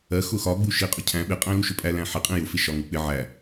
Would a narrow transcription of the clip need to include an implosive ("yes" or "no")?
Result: yes